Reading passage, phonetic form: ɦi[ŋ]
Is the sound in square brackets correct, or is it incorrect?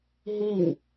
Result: correct